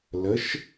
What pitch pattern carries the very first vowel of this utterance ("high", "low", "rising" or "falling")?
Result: rising